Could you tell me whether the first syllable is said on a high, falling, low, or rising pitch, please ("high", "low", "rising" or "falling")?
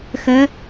rising